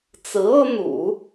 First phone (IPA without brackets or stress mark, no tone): t͡s